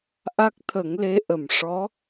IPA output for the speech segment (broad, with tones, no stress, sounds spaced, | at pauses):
ʔ a˦˥ k̚ t̪ʰ ə˨˩˦ ŋ l e˧˥ ʔ ə˨˩ m ʂ ɔ˧˥